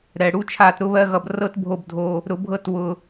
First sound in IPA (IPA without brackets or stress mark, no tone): ɾ